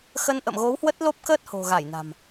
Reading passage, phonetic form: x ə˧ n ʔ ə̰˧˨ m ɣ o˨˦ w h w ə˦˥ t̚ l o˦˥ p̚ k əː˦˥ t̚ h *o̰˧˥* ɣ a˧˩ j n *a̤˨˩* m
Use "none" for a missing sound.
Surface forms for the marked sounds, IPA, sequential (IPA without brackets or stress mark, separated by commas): o̤˨˩, a̤˨˩